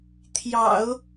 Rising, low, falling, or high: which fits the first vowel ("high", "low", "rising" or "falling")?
low